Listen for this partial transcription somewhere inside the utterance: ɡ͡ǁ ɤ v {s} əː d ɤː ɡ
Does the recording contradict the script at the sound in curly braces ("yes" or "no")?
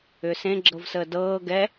no